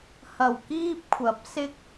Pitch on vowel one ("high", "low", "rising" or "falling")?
low